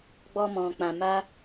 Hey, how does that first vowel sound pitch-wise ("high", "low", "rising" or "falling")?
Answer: high